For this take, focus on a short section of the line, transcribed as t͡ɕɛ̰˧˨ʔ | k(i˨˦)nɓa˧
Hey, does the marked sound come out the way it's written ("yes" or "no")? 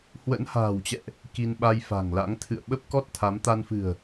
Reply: no